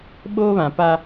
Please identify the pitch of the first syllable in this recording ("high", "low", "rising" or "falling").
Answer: high